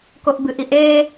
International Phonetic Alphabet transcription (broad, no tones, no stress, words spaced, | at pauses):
koʔbɨʔiʔ e